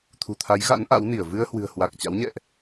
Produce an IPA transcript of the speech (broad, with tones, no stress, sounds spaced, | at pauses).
t̪ʰ ṳ˨˩ t̪ʰ a˨˦ j ɣ a̰˧˥ n ʔ a̰˧˥ w n i˧˩ ə̯ v ɨ˧ ə̯ h w ɨ̤˨˩ ə̯ h w a˨˩ k̚ t͡ɕ a̰˧˥ w ɲ ɛ̰˧˨ ʔ